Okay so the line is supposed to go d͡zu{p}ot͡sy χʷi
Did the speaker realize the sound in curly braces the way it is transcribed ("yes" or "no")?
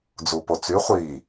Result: yes